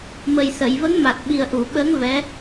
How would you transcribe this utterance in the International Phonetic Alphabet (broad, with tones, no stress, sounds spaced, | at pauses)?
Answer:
m ə˨˩ j s ə˨˩˨ j v ə˧˥ ŋ m a˨˩ t̚ ɓ i˨˩ ə̯ ʔ u˨˩˨ ɓ əː˧˥ ŋ v ɛ˧˥